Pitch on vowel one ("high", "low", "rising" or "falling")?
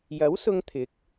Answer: rising